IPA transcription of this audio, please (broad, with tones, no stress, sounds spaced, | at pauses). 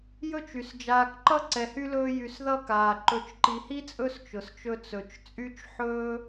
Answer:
j ɵ˥ t͡ʃ y˩ s d͡ʒ aː˨ k ǃ ʌ˥ ǀ ɛ˨ h y˥ l ɵː˦ j y˨ s ð ʌ˥ k aː˩ ǃ ɵ˨ t͡ʃ ǃ i˨ h i˥ t͡sʼ ɵ˦ s t͡ʃ ʊ˩ s t͡ʃ ɵ˦ t͡s ɵ˨ t͡ʃ t͡sʼ y˥ t͡ʃ ħ ɵː˥